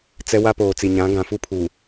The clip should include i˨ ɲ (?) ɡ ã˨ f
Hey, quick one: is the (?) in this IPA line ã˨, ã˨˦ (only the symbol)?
ã˨˦